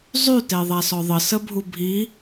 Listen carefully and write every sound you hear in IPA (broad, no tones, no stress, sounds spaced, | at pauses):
zˤ y t e ðˤ a s ɔ ðˤ ə s ə bʱ u bʱ i